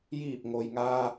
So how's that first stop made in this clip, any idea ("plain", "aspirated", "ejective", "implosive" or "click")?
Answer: plain